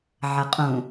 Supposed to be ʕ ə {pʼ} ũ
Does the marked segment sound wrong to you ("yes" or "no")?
yes